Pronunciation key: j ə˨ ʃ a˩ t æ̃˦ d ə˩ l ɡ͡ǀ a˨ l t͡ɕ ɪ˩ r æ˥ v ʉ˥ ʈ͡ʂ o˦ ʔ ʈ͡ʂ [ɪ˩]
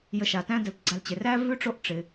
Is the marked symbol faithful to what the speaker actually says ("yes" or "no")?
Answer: yes